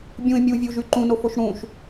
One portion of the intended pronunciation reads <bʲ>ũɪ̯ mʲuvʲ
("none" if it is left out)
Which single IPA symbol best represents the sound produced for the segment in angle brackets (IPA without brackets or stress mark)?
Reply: bʲ